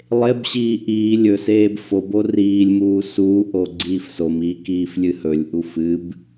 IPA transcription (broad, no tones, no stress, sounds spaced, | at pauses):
lˠ e b ɕ iː ʔ iː lʲ ɵ s eː b f o b o r iː lʲ m uː s uː ʔ o ɡ͡ǀ iː f s o m iː k iː f lʲ ɨ h ɵ lʲ ʔ u f ɨ b